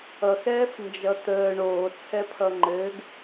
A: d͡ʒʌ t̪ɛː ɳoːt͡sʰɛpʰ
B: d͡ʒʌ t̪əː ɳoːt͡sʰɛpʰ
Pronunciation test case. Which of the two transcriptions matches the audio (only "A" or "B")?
B